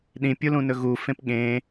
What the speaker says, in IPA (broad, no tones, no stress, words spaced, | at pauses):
ɗĩpʲulũ nɵɣufẽp ɠẽ